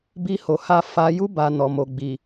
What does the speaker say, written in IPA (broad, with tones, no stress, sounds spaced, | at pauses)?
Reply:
b i˧ h o˨ h a˧ f a˦ j u˦ b a˧ n ɔ˨ m o˨ ɡ͡b i˨